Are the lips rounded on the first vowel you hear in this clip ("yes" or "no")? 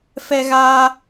no